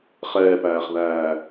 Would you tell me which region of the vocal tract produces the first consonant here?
uvula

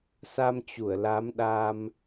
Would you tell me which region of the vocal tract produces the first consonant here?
tongue tip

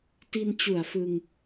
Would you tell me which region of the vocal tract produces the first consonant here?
tongue tip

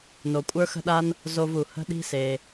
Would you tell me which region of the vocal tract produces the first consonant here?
tongue tip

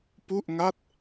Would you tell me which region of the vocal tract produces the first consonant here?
lips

